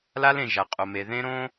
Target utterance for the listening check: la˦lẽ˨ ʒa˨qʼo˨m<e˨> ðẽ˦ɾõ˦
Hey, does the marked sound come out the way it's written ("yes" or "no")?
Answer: yes